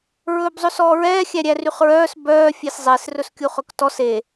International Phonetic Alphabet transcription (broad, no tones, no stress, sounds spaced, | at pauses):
ɹ ɵː b zˤ ɵ s ɔː ɹ ɛː xʲ æ ɾʲ æ r y χ ɹ œː s b œː fʲ e s zˤ e s r ɵ s kʲ u χ ɵ k t ɔ s e